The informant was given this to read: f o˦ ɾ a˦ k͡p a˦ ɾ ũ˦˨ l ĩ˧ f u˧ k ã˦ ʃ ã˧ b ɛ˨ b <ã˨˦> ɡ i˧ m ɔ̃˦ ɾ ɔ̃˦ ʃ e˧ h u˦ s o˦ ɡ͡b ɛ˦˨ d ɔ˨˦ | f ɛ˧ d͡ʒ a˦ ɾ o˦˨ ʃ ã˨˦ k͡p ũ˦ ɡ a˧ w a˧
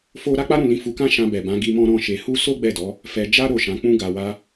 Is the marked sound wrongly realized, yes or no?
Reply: no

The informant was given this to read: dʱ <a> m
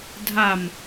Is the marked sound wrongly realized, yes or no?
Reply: no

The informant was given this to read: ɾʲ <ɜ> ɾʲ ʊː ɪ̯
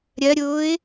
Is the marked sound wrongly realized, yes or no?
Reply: no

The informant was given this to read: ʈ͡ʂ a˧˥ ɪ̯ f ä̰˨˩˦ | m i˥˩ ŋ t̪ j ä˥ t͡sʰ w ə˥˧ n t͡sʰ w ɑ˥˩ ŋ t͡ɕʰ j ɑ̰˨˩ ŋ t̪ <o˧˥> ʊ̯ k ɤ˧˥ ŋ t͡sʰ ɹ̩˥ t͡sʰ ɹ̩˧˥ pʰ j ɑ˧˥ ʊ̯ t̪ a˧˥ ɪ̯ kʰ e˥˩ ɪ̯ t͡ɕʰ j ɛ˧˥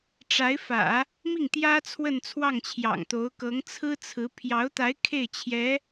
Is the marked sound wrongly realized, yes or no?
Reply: no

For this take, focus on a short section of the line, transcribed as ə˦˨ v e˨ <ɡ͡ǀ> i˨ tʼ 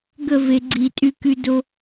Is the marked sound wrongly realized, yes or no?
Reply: no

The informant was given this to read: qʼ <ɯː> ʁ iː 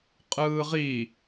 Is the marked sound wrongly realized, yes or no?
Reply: no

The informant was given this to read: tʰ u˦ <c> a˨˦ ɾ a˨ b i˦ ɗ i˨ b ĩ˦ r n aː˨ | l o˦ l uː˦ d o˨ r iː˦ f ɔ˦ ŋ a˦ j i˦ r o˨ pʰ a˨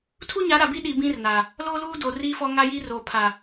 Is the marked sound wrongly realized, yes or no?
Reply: yes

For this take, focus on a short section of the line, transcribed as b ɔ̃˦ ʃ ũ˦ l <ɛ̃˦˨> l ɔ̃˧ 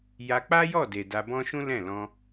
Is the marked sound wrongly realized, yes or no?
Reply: no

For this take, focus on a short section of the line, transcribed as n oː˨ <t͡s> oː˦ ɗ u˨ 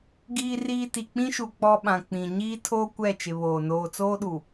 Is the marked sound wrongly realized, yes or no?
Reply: no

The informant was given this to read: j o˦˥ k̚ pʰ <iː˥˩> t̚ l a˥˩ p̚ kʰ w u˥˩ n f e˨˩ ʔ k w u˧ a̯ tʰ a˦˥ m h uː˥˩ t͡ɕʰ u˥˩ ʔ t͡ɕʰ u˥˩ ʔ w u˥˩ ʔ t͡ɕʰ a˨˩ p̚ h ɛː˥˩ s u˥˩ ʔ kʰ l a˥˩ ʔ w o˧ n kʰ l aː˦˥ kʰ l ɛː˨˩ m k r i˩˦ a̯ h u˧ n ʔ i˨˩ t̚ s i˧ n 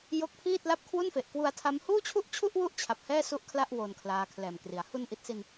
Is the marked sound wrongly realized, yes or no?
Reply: no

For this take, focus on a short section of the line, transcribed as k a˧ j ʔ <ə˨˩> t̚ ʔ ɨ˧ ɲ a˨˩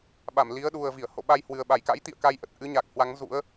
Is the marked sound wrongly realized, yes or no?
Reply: no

